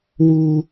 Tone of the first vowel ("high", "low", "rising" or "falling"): high